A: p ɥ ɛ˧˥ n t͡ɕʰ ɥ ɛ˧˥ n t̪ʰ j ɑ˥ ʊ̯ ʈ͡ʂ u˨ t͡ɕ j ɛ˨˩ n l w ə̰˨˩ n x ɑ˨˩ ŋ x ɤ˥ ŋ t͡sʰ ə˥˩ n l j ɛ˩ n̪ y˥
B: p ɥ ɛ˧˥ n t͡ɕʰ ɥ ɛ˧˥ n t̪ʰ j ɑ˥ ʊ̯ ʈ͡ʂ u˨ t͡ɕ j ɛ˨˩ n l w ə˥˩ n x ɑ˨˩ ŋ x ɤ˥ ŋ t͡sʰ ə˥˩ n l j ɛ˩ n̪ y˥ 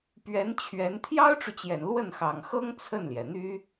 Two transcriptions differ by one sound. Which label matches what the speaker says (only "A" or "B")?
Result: B